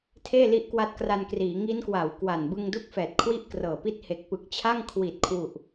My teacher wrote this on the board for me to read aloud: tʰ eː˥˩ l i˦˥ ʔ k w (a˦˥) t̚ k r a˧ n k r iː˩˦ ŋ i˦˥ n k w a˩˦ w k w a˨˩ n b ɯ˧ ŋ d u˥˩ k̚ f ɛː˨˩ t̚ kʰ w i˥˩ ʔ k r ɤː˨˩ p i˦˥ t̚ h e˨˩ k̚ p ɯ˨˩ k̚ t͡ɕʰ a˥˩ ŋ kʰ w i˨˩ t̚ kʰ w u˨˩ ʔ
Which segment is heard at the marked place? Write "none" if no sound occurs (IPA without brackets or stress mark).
a˦˥